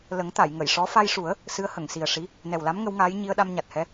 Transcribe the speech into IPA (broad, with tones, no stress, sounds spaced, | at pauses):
l ə˨˩˦ ŋ t̪ a˨˩˨ j ŋ ə˨˩˨ j ʂ ɔ˧˥ f a˧ j ʂ u˨˩˦ ə̯ | s ɨ˧˥ ə̯ h ə˨˩˨ ŋ s i˨˩ ə̯ ʂ i˧˥ | n ɛ˨˩ w l a˧˥ m ŋ ə˧˥ w ŋ aː˧˥ j ɲ i˧ ə̯ ɗ a˧ m ɲ a˨˩ t̚ h ɛ˧˥